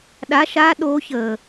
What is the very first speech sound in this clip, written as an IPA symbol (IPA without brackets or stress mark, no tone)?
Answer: ɗ